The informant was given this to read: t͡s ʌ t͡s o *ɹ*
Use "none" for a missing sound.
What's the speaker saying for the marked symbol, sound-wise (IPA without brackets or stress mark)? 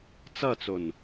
n